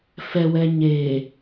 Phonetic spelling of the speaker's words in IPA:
f ɛ w ɛ ɲ e

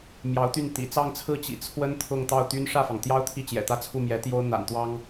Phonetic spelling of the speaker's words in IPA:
m j ɑ˧˥ ʊ̯ t̪ y˥˩ n t̪ ḭ˨˩ t͡s ɑ˥˧ ŋ t͡sʰ ɹ̩˥˩ t͡ɕ ḭ˨˩ t͡sʰ w ə˥ n t̪ʰ ʊ˥˧ ŋ t̪ ɑ˥˩ ʊ̯ t̪ y˥ n ʂ ä˥˩ f ɑ˩ ŋ t̪ j ɑ˥ ʊ̯ t̪ʰ i˥˩ t͡ɕ j ɛ̰˨˩ t̪ ä˥˧ t͡sʰ u˥˩ m j ɛ˧˥ t̪ j o˥ ʊ̯ n̪ a̰˨˩ n t̪ w ɑ˥ ŋ

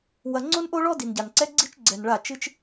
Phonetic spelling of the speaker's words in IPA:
w ɐ˨ ŋ͡ǀ o˦ n ʔ o˦ ɭ ɔ˦ d i˨ n ɟ a˨ n ǀ ɛ˦ ɡ͡ǀ i˦ t͡ʃ ɡ͡ǀ ɛ˨ n ɭ a˦˨ t͡ʃ ɨ˦ t͡ʃ

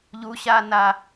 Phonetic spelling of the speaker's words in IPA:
ʎ u ɕ a n a

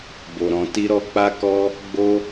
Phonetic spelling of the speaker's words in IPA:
b o˨ ɾ ɔ̃˨ t i˧ ɾ ɔ˧ k͡p a˦ k ɔ˦ | ɡ͡b o˦

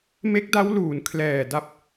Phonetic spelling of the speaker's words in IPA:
m e˦˥ k̚ d a˦˥ w l uː˩˦ n kʰ l ɛː˨˩ d a˦˥ p̚

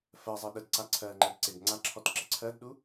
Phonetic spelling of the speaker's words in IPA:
f ɜ zˤ ɜ ɗ ə d ǀ a ǀʰ ɜ ŋ͡ǃ ɛ d ǀ e b ŋ͡ǀ a ǁʰ ɔ t ǁ ə ǀʰ ɜ d ɗ u

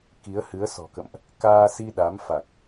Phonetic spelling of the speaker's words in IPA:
k i˨˦ ə̯ h ɨ˨˦ ə̯ s ɔ̤˨˩ k ə̰˧˨ m ʔ | k aː˧ s i˧ ɗ a˨˦ m f a˨˩ k̚

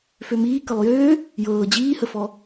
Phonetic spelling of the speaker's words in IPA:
f ø m iː k ə lˠ j øː | j ɤː d͡ʑ iː h ə f ɔ

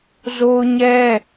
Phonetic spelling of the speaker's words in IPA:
z o˦ ʊ̯ ɲ ɛ˦

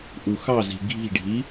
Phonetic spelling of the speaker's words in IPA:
ʔ u x ɑ z i̤ ɡʱ i̤ ɖʱ i

